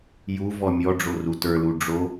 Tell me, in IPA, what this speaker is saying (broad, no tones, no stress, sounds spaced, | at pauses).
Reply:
j u v ɔ mʲ ɔ ɖ͡ʐ o r u t ə˞ l u ɖ͡ʐ o